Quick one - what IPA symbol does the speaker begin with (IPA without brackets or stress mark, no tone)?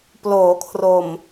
p